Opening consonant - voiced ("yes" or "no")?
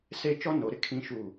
no